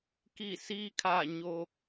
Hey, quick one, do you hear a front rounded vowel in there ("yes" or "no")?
no